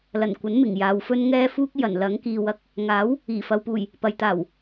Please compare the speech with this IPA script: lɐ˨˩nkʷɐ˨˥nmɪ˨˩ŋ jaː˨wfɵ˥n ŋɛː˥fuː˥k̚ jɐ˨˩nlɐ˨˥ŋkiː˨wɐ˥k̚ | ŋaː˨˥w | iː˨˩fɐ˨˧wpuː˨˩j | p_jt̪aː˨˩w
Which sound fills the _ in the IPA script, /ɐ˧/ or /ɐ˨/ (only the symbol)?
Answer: ɐ˨